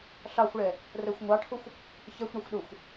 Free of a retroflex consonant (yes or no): no